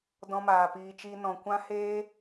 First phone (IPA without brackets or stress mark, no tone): d